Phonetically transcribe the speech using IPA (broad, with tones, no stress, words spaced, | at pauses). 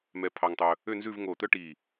mɛ˧pʰɑ˧ŋtˤɵ˧ | ø˥˧nzʉ˥˧vŋoː˧˩t̪œ˥ ʈi˧˩